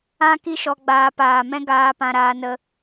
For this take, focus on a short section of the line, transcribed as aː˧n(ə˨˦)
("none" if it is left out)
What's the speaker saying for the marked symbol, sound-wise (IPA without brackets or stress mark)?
ə˧